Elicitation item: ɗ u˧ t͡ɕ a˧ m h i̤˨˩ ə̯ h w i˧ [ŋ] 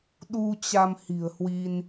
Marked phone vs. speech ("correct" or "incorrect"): incorrect